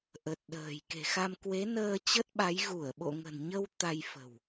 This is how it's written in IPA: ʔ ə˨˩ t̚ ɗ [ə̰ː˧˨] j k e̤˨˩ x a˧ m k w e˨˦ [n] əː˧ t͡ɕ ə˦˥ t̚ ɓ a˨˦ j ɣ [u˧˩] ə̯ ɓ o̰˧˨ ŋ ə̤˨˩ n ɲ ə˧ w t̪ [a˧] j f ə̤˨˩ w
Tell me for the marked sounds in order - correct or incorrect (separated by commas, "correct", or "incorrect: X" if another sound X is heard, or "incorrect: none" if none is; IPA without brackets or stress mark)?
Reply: incorrect: ə̤ː˨˩, correct, correct, correct